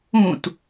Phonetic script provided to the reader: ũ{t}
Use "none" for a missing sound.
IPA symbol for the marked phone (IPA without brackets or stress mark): t